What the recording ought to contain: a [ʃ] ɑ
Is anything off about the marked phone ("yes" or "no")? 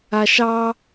no